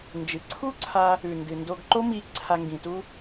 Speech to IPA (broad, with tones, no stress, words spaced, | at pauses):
nd͡ʒɨ˩ ǀʰu˥ǀʰa˧ | ʉ˩ndɨ˩ ndo˧ɡǃo˥mi˧ ǀʰa˧ŋɡĩ˩tu˥